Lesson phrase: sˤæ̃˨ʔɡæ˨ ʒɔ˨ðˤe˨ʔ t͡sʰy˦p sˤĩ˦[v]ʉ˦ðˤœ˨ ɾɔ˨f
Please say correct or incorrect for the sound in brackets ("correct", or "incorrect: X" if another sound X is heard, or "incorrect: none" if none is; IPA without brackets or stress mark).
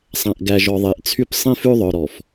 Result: incorrect: f